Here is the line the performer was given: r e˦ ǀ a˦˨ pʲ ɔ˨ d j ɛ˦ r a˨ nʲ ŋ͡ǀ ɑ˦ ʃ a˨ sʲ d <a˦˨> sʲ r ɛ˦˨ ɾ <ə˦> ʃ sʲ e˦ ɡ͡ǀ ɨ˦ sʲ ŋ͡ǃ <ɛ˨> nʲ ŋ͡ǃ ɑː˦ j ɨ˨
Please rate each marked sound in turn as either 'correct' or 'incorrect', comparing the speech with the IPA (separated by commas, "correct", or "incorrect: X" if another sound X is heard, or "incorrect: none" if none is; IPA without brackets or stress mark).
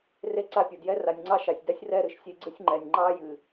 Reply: incorrect: a˦, incorrect: ɨ˦, correct